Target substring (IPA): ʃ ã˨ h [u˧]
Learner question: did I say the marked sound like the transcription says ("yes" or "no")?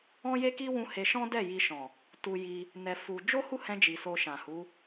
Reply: no